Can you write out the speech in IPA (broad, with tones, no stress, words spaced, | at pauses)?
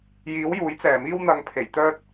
jiː˨˥wjuː˨˥jt͡sɛː˨˩miː˥w n̪ɐ˧ŋpʰe˨˩j t̪œː˥t̚